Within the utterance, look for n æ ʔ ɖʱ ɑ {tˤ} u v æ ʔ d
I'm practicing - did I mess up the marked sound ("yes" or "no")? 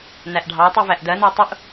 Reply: no